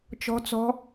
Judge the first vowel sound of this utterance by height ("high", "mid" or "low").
mid